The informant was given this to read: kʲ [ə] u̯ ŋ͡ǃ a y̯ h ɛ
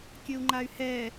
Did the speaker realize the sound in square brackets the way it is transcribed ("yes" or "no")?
yes